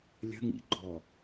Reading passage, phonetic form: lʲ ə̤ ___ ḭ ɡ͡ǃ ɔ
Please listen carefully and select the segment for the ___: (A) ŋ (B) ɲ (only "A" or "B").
A